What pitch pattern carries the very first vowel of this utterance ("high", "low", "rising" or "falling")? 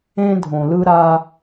high